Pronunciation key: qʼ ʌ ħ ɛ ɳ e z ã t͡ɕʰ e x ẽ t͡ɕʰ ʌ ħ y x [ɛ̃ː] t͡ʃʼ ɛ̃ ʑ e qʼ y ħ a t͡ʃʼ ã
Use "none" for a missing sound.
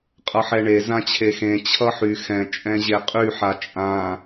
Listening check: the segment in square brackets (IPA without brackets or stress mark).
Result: ɛ̃